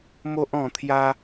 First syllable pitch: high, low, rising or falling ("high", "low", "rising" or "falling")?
high